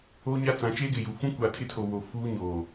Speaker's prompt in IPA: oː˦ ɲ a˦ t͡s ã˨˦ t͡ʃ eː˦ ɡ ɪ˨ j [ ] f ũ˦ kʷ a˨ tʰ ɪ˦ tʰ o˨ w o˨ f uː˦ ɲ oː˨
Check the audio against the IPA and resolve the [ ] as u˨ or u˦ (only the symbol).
u˨